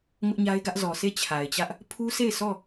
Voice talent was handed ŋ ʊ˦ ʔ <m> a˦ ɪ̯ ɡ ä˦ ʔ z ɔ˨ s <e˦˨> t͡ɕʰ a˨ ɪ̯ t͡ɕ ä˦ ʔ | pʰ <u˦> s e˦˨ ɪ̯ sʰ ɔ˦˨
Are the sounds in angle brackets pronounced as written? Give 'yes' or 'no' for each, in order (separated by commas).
no, yes, yes